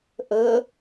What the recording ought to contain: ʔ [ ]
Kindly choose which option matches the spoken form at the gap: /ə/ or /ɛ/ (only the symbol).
ə